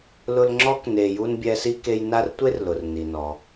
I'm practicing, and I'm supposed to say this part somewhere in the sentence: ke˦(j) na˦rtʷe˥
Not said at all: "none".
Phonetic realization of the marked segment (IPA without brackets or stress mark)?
j